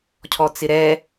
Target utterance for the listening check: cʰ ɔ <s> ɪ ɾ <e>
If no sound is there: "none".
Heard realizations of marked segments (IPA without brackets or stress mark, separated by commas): t͡s, ɛ